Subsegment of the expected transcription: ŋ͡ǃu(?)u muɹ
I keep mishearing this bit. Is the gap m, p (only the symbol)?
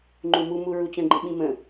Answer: m